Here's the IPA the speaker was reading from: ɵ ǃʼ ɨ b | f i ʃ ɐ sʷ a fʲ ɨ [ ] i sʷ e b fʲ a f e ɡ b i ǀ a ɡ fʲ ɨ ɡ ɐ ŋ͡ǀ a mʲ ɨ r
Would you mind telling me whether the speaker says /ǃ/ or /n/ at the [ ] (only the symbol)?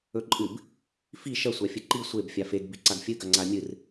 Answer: ǃ